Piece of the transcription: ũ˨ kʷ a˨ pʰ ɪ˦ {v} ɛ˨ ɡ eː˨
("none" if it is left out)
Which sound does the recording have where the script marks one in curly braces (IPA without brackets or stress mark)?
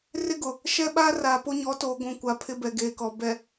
b